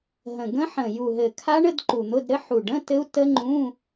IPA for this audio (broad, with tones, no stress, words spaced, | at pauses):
ɦə̃˨˩ ɡə̃˦˥ħə̃˨˩ ju˨˩ɦɘ˨˩kʰa˦˥ɳə˧˥˧d ǃu˨˩n̪ʊ˧˥˧dɾɘ˦˥ ħu˨˩ɖə̃˧˥˧ tɘ˦˥u̯tə˦˥ŋ͡ǃũ˧˥˧